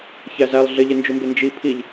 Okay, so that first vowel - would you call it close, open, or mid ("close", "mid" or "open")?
open